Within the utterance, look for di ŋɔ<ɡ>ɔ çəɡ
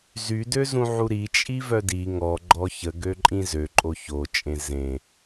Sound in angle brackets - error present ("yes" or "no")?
yes